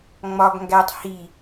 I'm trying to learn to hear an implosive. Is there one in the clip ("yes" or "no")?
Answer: no